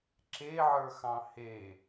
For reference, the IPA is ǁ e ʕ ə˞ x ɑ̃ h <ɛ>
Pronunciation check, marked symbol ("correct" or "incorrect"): incorrect